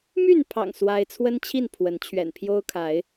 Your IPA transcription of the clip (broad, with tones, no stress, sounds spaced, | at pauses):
m y˥˨ n pʰ ɑ̰˨˩ ŋ s w a˦ ɪ̯ t͡sʰ w ə˦ n t͡ɕʰ i˥˨ n pʰ w ə˨˦ n t͡ɕʰ ɥ ɛ̰˨˩ n pʰ j o˦ ʊ̯ kʰ a˨˦ ɪ̯